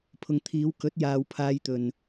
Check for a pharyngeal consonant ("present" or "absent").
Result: absent